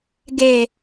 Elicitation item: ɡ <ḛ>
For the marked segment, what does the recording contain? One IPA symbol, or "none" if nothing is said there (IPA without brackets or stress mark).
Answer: e